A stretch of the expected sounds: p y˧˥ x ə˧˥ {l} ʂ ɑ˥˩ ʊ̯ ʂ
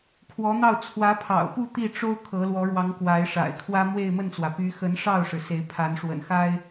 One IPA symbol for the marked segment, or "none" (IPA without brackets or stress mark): n